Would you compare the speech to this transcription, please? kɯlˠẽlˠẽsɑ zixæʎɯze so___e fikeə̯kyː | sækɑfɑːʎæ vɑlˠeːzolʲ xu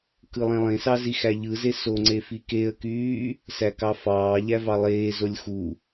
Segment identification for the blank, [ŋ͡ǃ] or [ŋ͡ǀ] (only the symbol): ŋ͡ǀ